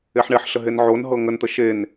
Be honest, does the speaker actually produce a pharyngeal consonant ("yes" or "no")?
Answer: yes